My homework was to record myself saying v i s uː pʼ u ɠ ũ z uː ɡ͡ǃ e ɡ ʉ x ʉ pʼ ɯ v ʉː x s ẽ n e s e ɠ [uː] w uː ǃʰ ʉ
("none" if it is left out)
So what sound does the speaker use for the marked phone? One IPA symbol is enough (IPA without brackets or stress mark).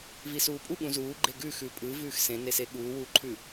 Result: uː